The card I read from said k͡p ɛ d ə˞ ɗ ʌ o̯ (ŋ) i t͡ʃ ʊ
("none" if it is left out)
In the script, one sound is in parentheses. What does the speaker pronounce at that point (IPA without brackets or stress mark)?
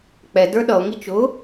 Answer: ŋ